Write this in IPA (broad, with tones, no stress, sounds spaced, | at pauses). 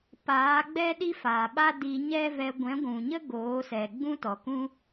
p aː˨˦ ɡ͡b ɛ˦ ɗ i˦ f aː˨ ɓ a˦ d i˧ ɲ ɛ˦ v ɛ˧ ɡʷ ɛ̃˨˦ ɡʷ ũ˨ ɲ ə˦ ɡ oː˨˦ s ɛ˨ ɡ͡b ũ˦ t ɔ˨ k ũ˦